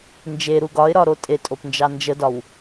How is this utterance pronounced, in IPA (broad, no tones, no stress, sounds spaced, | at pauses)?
n d͡ʒ e ɾ u ɡ ɒ ɪ̯ ɾ ɒ ɾ o tʼ e tʼ o p n d͡ʒ ɑ n d͡ʒ ə d ɒ w